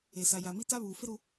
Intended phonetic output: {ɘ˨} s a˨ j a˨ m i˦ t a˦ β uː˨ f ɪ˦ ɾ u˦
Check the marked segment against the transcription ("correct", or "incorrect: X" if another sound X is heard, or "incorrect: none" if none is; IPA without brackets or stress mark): incorrect: e˨